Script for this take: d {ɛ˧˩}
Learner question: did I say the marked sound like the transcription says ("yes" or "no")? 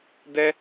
no